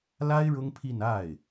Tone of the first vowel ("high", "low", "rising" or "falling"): high